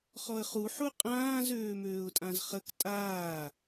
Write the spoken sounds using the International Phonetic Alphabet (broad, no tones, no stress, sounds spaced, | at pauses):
χ ɔ ə̯ χ u ħ u qʼ ãː z øː m øː ʊ̯ tʼ ã z χ ə k tʼ aː